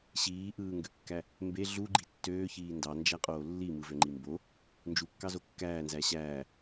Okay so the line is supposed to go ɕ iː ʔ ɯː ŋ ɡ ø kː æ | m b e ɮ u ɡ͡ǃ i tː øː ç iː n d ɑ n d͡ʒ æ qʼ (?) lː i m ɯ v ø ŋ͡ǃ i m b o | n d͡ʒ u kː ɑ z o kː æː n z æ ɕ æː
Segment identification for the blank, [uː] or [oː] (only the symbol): oː